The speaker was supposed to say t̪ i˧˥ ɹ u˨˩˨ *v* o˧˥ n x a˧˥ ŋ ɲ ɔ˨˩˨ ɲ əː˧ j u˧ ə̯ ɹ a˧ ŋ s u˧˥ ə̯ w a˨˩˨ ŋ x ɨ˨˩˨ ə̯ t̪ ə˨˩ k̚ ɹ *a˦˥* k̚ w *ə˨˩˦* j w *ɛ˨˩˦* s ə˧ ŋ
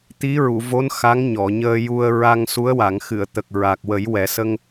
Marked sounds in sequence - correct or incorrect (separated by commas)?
correct, incorrect, correct, correct